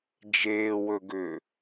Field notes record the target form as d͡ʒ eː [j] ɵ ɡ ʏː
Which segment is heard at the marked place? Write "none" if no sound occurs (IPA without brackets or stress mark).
w